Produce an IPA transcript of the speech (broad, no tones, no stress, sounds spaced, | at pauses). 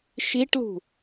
ʃ i ʈ l ṳ